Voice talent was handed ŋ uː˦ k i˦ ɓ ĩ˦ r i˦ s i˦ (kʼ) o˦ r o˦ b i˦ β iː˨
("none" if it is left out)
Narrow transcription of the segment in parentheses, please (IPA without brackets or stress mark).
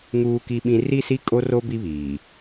kʼ